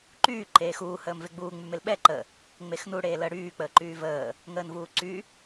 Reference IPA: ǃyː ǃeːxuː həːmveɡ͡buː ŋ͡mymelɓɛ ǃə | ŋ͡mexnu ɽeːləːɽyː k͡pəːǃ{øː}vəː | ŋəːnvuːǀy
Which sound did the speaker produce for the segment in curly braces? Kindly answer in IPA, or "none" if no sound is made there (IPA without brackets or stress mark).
yː